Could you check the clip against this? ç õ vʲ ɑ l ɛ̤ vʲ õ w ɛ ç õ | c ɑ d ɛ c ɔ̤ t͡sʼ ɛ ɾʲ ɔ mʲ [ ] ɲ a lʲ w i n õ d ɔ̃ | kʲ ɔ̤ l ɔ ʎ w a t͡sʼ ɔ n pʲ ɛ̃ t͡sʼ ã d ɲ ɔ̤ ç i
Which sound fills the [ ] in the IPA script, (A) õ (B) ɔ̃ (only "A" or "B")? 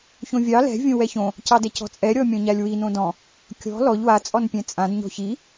B